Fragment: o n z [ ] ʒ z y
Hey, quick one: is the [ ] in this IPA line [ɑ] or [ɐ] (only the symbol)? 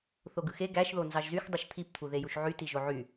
ɑ